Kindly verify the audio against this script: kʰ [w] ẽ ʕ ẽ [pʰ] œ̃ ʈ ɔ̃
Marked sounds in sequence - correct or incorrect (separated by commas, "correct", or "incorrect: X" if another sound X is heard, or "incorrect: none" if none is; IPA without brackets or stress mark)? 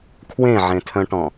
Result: correct, incorrect: tʰ